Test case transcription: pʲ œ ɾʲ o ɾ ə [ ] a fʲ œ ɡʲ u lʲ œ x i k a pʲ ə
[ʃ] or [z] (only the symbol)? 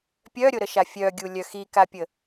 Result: ʃ